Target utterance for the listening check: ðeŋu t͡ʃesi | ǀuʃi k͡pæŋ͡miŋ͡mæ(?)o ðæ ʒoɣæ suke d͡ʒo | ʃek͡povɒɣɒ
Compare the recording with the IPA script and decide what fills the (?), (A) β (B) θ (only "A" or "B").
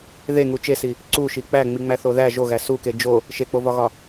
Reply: B